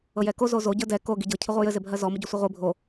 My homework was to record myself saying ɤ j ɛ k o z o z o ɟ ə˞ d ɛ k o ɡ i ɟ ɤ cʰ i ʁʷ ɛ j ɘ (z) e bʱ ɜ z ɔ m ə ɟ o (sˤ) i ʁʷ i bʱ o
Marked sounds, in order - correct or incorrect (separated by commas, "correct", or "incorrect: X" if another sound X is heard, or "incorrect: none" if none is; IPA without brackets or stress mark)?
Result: correct, incorrect: sʷ